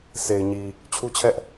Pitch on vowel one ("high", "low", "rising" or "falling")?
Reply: low